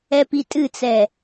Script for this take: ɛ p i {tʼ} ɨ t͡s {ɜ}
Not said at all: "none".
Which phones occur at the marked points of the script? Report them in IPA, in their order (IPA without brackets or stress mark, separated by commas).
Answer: tʼ, ɛ